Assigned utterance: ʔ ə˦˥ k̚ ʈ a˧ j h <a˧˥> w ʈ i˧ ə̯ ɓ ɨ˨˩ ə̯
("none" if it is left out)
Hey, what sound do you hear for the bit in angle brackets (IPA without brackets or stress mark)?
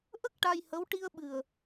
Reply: ə˧˥